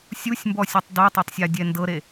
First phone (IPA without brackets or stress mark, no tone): sʲ